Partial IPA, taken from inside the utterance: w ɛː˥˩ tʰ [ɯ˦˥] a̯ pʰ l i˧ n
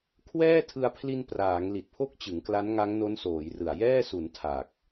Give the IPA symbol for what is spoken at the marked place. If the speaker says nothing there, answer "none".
ɯ˧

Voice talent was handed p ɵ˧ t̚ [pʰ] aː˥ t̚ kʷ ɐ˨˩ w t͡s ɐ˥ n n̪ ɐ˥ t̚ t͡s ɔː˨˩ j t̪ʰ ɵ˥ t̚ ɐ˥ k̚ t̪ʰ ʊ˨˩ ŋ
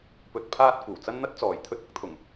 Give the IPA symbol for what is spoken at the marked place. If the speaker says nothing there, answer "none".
pʰ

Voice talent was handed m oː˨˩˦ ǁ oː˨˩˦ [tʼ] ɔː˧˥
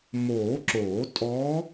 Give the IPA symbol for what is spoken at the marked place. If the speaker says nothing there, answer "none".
tʼ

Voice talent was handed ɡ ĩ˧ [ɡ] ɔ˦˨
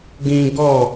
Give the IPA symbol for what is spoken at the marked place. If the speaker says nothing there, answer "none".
ɡ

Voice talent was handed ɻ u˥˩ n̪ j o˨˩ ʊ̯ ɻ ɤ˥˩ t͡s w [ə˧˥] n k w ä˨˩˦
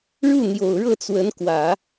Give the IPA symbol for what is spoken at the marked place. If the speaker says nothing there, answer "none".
ə˧˥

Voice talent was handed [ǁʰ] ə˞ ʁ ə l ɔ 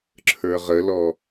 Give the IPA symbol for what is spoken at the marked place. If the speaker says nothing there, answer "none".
ǁʰ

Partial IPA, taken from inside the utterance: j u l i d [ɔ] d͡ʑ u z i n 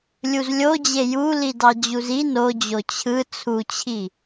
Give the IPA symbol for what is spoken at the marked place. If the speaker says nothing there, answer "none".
ɑ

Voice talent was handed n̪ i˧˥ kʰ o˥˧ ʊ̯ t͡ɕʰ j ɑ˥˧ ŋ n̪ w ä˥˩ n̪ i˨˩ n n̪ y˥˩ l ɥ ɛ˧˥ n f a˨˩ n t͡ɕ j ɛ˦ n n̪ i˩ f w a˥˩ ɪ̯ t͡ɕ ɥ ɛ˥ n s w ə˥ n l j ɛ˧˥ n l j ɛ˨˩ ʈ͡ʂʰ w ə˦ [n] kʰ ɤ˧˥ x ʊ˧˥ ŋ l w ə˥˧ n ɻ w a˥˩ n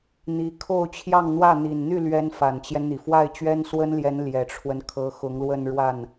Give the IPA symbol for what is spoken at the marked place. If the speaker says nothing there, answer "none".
n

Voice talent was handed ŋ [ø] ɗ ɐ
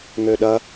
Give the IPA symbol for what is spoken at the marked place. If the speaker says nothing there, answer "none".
ø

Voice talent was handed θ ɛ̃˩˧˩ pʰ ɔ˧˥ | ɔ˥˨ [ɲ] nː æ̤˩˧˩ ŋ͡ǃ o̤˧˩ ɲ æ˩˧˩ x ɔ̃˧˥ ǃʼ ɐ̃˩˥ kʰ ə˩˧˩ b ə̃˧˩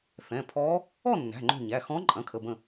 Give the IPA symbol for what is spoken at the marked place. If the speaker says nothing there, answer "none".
none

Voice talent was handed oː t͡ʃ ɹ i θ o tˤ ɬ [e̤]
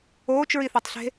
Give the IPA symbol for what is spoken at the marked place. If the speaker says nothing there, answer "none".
e̤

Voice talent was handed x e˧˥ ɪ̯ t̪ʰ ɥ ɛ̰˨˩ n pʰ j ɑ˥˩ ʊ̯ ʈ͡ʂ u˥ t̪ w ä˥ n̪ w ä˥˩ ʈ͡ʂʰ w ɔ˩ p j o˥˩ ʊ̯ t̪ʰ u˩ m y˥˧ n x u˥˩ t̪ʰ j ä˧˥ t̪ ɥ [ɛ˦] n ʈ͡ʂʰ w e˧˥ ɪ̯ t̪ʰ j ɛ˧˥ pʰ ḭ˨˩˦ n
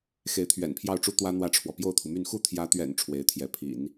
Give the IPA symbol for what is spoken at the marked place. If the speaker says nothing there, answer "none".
ɛ̰˨˩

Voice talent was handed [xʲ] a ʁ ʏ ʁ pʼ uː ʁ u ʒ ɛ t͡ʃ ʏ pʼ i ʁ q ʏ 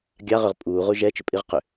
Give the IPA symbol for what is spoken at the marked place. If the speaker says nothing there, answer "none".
ɡʲ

